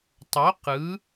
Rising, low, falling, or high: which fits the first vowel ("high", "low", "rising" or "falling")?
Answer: rising